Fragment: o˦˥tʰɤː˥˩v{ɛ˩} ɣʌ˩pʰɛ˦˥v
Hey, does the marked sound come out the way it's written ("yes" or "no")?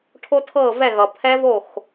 no